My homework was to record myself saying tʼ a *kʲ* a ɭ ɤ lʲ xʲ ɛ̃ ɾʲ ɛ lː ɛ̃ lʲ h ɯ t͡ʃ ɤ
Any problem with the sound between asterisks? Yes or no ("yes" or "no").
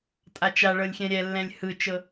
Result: yes